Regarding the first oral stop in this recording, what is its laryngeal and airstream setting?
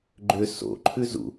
click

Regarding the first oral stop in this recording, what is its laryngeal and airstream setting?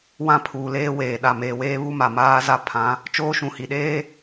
aspirated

